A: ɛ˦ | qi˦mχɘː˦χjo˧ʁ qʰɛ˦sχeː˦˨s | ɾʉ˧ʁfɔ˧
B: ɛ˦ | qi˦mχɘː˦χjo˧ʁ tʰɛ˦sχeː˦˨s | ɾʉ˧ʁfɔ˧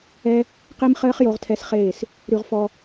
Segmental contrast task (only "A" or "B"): B